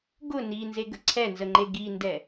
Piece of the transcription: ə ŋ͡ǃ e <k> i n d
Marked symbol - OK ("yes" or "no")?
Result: no